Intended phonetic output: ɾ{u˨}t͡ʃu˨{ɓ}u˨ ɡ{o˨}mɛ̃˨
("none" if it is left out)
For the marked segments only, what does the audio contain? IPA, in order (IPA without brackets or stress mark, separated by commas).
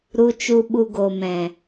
u˨, ɓ, o˨